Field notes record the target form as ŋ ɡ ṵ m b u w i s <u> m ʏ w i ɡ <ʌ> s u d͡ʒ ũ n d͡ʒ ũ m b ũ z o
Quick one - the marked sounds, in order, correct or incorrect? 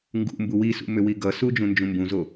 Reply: incorrect: ṵ, correct

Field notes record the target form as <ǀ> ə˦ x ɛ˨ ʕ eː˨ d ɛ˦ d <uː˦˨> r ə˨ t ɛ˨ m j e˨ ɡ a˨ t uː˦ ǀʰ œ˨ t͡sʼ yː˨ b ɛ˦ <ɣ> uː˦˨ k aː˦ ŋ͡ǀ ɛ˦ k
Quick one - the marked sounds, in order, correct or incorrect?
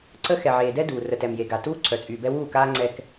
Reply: correct, incorrect: uː˨, incorrect: w

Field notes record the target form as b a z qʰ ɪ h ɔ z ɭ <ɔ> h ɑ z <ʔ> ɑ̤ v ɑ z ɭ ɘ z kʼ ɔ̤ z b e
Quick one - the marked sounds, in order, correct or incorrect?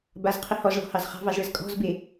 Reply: incorrect: ɔ̤, incorrect: χ

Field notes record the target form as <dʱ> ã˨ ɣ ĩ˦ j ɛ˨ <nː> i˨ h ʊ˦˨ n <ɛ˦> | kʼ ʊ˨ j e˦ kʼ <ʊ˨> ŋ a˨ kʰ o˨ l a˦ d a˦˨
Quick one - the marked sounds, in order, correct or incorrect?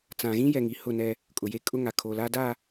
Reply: incorrect: t͡s, incorrect: ŋ, correct, incorrect: ʊ˦

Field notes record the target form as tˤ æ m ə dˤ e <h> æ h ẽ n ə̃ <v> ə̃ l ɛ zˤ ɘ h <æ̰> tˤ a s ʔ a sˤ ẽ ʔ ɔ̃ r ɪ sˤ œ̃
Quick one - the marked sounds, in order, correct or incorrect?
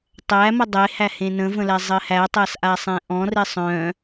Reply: correct, correct, incorrect: æ

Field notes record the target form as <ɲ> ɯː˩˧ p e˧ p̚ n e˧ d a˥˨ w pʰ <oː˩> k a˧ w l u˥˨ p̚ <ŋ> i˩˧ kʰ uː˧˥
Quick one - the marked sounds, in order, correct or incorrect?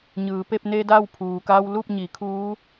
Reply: correct, incorrect: uː˩, incorrect: ɲ

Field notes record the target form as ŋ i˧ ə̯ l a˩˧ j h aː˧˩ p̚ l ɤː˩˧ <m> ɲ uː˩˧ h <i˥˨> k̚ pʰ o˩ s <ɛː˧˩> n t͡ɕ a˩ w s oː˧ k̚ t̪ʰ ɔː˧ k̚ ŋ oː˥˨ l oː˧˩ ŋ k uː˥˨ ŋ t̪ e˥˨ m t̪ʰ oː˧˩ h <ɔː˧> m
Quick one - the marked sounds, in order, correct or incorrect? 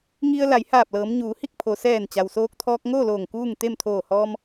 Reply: correct, correct, correct, correct

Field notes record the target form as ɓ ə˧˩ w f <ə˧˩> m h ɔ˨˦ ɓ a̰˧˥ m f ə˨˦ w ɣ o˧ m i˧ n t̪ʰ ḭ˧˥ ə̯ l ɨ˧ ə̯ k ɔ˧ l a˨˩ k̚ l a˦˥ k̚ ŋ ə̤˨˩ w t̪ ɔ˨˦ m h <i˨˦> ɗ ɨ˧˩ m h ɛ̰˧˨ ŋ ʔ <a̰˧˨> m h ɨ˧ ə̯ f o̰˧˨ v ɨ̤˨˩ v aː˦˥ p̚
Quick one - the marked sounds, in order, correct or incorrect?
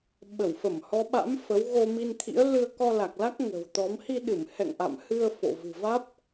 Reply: correct, incorrect: i˧, correct

